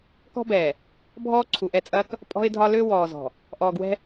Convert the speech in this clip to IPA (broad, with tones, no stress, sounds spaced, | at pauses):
k ɔ̤˦ b ɛː˨ | bʱ ɔː˦ ǀʰ u˨ ʔ ɛ˦˨ t͡sʼ ɐː˦ k | pʼ ɔ̤˦ ɪ̯ dʱ ɒ˦ l ø˦ w ɔː˨ z ɔ̤˨ | ʔ ɔː˨ ɡ w ɛ̤˦